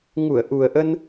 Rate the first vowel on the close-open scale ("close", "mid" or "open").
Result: close